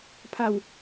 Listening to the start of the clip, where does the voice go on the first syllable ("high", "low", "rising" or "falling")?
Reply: falling